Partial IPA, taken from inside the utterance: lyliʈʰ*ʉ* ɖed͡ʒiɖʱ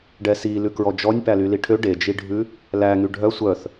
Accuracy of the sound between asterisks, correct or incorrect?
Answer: incorrect